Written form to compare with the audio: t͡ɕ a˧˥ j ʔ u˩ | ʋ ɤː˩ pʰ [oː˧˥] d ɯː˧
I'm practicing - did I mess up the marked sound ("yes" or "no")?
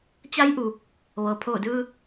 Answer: yes